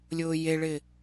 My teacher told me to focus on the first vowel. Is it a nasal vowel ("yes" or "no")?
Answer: no